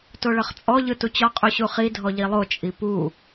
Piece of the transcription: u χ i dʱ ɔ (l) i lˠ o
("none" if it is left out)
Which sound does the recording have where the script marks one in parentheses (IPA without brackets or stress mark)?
ʎ